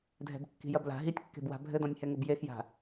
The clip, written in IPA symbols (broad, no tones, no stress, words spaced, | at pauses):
dʱɛ̤bkːi̤jɐbla̤ ɦitʲkːe̤bwa̤ bʱɘd̪ɔ̃nʲhɛŋɘb jexja̤